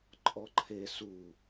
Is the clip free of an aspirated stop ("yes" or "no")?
no